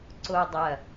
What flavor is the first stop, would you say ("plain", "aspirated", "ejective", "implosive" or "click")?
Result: click